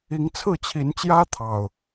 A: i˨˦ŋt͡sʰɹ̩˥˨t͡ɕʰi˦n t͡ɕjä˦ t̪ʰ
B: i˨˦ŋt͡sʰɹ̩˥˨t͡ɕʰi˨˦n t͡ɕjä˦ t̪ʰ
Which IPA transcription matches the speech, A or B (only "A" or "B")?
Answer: B